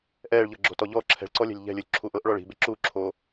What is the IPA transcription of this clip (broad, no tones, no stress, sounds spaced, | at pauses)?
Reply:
ʔ ɛː ɭ ʎ ɤ ɡ͡ǁ o̤ t ɔ ʎ ɔ ǁʰ ɛ̤ ɭ ǀ ɔ lʲ ɛ̤ lʲ ʎ ɛ̤ lʲ u lʲ ǁʰ u ʔ ɤ ʔ ɭ ɔ ɭ i̤ b e ǁ uː ǁʰ oː